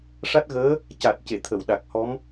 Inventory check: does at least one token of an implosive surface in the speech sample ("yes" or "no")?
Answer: yes